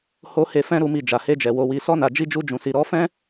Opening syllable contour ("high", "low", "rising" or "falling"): high